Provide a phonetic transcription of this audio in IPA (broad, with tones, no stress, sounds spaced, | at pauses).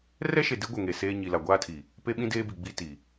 r ɛ˦ ʃ e˨ d i˨˦ ɡʷ ɛ˨ ŋ e˨ s eː˦ ɲ i˨ l a˨ ɡʷ aː˦ tʰ i˨ | p e˦ ɓ ĩ˦ d eː˦ b i˨ ɡ͡b i˦ t i˨